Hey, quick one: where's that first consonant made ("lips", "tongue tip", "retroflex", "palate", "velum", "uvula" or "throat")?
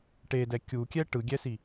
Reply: retroflex